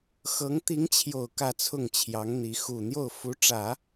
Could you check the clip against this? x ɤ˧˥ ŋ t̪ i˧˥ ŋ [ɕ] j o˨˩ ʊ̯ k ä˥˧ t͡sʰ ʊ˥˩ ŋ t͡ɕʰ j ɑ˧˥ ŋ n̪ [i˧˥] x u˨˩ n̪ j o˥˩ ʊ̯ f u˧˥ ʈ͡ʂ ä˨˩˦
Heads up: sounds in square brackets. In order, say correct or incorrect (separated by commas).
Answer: incorrect, correct